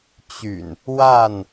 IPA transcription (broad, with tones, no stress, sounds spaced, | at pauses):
t͡ɕ y̰˨˩ n | w a˥˨ n